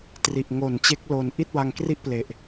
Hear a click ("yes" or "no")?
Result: no